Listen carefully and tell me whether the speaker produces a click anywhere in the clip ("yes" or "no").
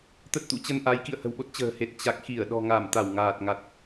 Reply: no